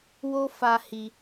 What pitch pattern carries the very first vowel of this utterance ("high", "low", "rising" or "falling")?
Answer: high